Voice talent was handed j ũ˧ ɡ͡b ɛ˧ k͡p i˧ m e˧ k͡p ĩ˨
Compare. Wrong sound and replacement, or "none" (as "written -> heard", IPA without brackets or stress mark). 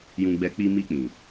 e˧ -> i˧